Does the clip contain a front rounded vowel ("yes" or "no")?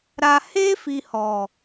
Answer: no